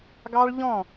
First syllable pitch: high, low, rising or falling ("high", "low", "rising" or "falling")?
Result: high